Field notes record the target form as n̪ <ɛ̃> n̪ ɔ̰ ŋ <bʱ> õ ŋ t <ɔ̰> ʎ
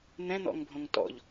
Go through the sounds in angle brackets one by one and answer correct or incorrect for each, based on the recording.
correct, correct, correct

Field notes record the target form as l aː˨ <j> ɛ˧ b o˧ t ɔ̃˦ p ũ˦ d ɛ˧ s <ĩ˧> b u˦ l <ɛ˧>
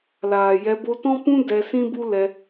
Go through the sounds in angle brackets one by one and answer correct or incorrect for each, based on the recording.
correct, incorrect, correct

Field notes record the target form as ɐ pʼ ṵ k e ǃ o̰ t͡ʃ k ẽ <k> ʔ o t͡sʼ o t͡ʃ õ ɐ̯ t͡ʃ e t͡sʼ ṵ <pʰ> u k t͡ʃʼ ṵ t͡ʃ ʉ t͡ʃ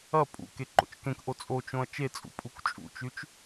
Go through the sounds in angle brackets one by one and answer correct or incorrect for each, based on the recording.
correct, incorrect

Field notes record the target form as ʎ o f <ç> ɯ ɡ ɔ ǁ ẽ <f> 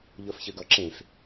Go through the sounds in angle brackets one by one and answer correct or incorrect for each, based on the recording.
correct, correct

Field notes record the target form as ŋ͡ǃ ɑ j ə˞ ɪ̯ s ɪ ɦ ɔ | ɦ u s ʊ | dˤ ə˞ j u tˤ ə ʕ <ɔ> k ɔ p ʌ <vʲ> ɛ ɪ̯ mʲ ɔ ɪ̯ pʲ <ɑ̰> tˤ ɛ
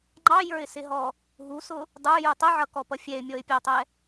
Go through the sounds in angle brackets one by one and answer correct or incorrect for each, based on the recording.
incorrect, incorrect, incorrect

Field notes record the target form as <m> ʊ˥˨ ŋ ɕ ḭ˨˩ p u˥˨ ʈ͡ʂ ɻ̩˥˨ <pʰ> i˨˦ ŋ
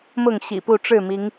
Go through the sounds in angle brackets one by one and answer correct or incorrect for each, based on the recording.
correct, incorrect

